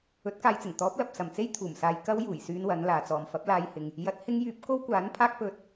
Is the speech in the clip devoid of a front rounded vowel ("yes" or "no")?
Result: no